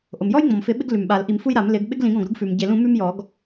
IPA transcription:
ʔ o˩ m j ɔ˥ j ŋ͡m ɔ̃˩ m f ɪ˨˩˦ ɓ ɪ˥ ɡ l ʉ˩ m ɓ a˨˩˦ l ʔ i˨˩˦ m f u˥ j ɾ a˨˩˦ m l ɪ˨˩˦ ɡ ɓ ɪ˥ ɡ l ĩ˨˩˦ ɡ ɔ̃˩ ɡ ɾ u˥ ɡ f ʉ˩ m ɟ e˨˩˦ l ũ˨˩˦ m ʉ˥ m j ɔ˨˩˦ ɡ

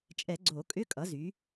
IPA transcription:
t͡ʃʼ ɛ˨˩˦ ɡ͡ǀ o˨˩˦ kʼ ʏ˧˥˧ kʼ ʌ˩˥ z y˩˥

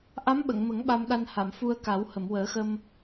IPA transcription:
ʔ a˧˥ m ɓ ə˨˩˨ ŋ m ə˨˩˦ ŋ ɓ a˧ m ɗ a˧ n h a˨˩˨ m f u˧ ə̯ k a˨˩˦ w h ə˨˩˨ m w əː˨˩˦ x ə˧ m

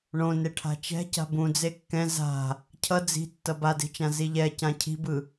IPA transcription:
ɳ õ n e ʈʰ a̤ t͡ʃ ɛ̤ c a̤ b ũ d͡z e kː ɛ̃ z a̤ | cʰ ʌ d͡z i̤ tː ʌ b a d e̤ t͡ʃ ã z i ʎ ɛ c ã cʰ i̤ b ɯ

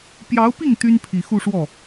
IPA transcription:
p j ɑ˧˥ ʊ̯ p i˥˩ ŋ t̪ y˥ n pʰ i˨˩ x u˥˧ ʂ w ɔ˥˩

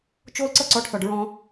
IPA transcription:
t͡ʃ o˦ l ǀ ɤ˦ ǀ ɔ˨˦ ɖ θ ɔ˨ ɖ ɹ ɔ̃˦

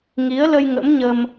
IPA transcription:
ŋ i˨˦ ə̯ l ə˧ j ŋ ə̰˧˥ m ɲ ə˧ m

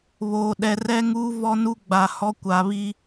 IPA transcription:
β oː˨ ɗ ɛ˨ r ɛ˦ ŋ uː˦ v ɔ˦ n u˦ ɡ͡b a˨ h ɔ˦ kʷ a˨ β i˦

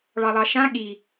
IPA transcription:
ɭ ɑ lˠ ɑ ʃ ã ɠ i

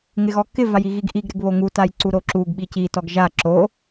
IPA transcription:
ŋ ɪ ɣ ɔ k ɪ v a j i ɣ i ɡ ʔ i ɡ ɾ ɪ ɡ β o ŋ u t a j ǀ u ɾ o ǁ u ɡ ɓ i c i t ɔ ɡ ʒ a ǁ o

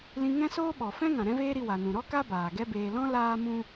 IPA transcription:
l ĩ˧ ŋ ɛ̃˦ s oː˦ ɓ ɔ˨ f ɛ̃˦ ŋ ã˨ ɾ ɛ̃˦ v eː˦ ɾ i˧ w a˨ n ũ˨ ɾ ɔ˦ k a˦ b aː˨ ɡ ɛ˦ b eː˧ l ɔ̃˦ l aː˦ m ũ˦

